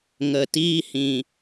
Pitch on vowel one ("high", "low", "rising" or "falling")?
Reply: low